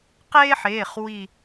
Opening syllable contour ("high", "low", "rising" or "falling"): high